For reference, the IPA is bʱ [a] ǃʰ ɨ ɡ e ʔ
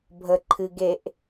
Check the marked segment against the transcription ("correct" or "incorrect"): incorrect